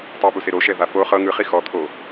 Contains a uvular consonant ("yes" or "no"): yes